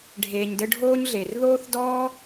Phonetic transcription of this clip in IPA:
ɖʱ eː˨ ɲ d ɘ˦ ɖʱ oː˥ ɲ ɮ e˩ r ð oː˥ θ d ɔː˥

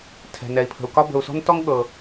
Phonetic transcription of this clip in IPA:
tʰ ɛ̤˩ n ɛ˩ i̯ pʰ ə̤˩ u̯ k ɒ˥ b ə̤˩ u̯ s ɔ̤˥ n t ɔ˥ ŋ ɠ ɤ˩

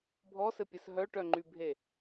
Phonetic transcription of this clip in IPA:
bʱ ɔ s ɘ pʲ ɘ s ɦ œ ʈ œ ŋ͡ǃ y bʱ e

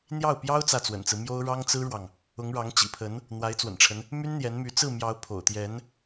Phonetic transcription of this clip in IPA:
n̪ j ɑ˥˩ ʊ̯ p j ɑ˥ ʊ̯ t͡s ä˥˩ t͡s w ə̰˨˩ n t͡s ɹ̩˦ m j o˥ ʊ̯ ɻ ɑ˥ ŋ t͡s ɹ̩˥ ɻ w ɑ˨ ŋ | ʊ˧˥ ŋ ɻ ɑ˧˥ ŋ t͡ɕ ḭ˨˩ pʰ ə˧˥ n | n̪ w a˧˥ ɪ̯ t͡s w ə̰˨˩ n ʈ͡ʂʰ ə˦ n | m y˥ n n̪ j ɛ˧˥ n m y˧˥ t͡s ɹ̩˥˩ m j ɑ˧˥ ʊ̯ pʰ o̰˨˩ ʊ̯ t̪ j ɛ˧˥ n

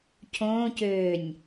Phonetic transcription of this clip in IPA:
cʰ õː c øː nʲ

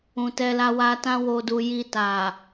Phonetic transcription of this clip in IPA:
ũ˨ t ɛ˧ l a˧ w a˧ t ã˧ w o˨ d u˨ j i˧ t a˨

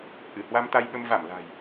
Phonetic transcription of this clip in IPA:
ʔ ɨ˧˩ h w a˧ m t̪ a˧ j ɓ ə˧ m v a˧˩ m l a̤˨˩ j

